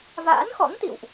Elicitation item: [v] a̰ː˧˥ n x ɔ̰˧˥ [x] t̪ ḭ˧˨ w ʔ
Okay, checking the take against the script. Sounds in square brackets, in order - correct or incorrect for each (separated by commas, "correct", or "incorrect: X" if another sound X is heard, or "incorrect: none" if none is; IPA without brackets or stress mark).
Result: correct, incorrect: ŋ